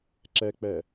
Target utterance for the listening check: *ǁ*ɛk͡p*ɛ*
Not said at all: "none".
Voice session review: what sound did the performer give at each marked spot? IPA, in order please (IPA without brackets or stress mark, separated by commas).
ǁ, ɛ